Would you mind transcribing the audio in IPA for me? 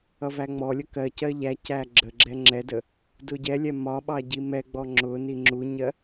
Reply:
ʌ v æ ŋ͡m ɔ lʲ ə k ɜ c ɜ ʎ æ c æ ɡ͡ǁ ə ɡ͡ǁ ɛ ŋ͡ǁ ɛ d ə | d ʊ ɟ ɛ lʲ ɛ m ɒ ɓ ɑ ɟ i m ɛ ɡ͡b ɔ ŋ͡ǁ ʊ n i ŋ͡ǁ u ɲ ɜ

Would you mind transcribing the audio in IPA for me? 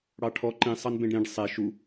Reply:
ɽ ɑ ʈʰ ɔ ǃ ĩ sˤ ɑ n b ẽ ɖ ɾ ĩ ɖ sˤ e ʃ u

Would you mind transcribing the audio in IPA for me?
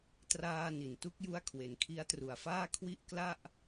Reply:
t r aː˧ n i˨˩ n t u˦˥ k̚ j u˦˥ a̯ kʰ w e˩˦ n kʰ i˦˥ a̯ t r u˨˩ a̯ f aː˥˩ kʰ w i˥˩ ʔ k l a˥˩ ʔ

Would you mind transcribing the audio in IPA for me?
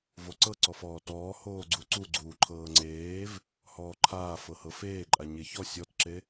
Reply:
v o ǀ ɤ ǀ ɔ f ɔː t ɔː h oː ɡ͡ǀ u ǀ u ɡ͡ǀ uː ǃʰ ɤː ŋ͡ǀ eː v | h ɔː ǃʰ aː f ɤ h ɤ f eː ǃʼ a ɲ e ç ɔ sʲ ɔ t ǁ e

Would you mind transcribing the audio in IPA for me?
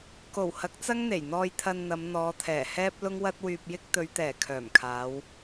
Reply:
k o˨˩ w h ɐ˨˥ k̚ t͡s ɐ˥ ŋ n̪ e˨˩ j n̪ ɔː˧ j t̪ʰ ɐ˧ n n̪ ɐ˨˧ m n̪ ɔː˨˧ t̪ʰ ɛː˨˩ h ɛː˥ p̚ l ʊ˥ ŋ w ɐ˥ t̚ w yː˧ p̚ j ɪ˥ k̚ t̪ ɵ˨˧ ɥ t̪ ɛː˨˩ kʰ œː˨˩ m kʰ aː˨˧ w

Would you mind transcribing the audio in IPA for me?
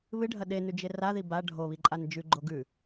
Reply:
β ɨ ɖʱ ɐ ɗ e n ʉ d͡ʒ e r a ð i b a ɖʱ o β i ǃʼ a n d͡ʒ ʉ ɡ͡ǃ o ɡ ʉ

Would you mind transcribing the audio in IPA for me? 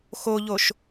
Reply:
x o ʎ o ʃ

